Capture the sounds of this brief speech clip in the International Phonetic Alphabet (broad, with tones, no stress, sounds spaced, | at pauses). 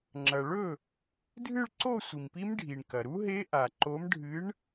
ŋ͡ǁ ɐ˩ ɭ ɵ˥˩ | dʱ ɨ˥˧ ɭ ǀ o˥˧ sʷ i˩ m p i˦˥ m ɖʱ i˩ ɳ k ɐ˩ ɾ u˦˥ ɦ e˦˥ ʔ a˩ ǃ o˨˥ m ɖʱ ɨ˨˥ ɳ